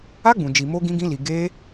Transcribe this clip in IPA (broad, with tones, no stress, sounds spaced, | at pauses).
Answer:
a˦ ɡ͡b ũ˧ d͡ʒ i˧ m o˦ ɡ ĩ˦ ɡ ĩ˦ l i˧ ɡ e˦